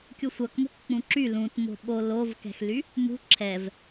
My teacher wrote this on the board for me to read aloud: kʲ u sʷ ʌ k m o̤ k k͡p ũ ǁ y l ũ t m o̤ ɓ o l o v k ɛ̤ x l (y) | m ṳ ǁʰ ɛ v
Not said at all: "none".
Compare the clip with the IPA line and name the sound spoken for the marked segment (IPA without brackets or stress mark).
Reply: y